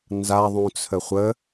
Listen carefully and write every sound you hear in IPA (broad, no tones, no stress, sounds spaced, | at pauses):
n z a ðˤ ũ t͡sʰ ə χʷ ə